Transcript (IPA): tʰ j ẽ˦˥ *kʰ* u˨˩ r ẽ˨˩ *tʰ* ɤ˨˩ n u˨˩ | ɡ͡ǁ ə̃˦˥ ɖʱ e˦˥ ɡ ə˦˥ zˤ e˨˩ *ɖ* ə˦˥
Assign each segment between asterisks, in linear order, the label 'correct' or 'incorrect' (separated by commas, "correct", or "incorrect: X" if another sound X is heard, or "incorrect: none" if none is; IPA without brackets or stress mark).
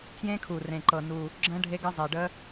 correct, incorrect: ǃ, correct